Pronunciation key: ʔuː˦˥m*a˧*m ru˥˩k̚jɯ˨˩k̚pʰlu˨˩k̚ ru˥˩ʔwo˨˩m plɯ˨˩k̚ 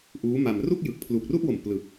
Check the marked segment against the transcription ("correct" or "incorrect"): correct